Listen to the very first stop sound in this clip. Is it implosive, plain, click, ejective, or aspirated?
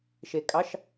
ejective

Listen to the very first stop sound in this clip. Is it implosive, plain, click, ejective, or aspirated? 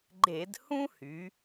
click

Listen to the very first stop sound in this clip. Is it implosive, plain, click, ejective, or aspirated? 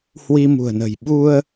implosive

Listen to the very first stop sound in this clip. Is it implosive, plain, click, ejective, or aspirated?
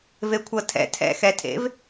aspirated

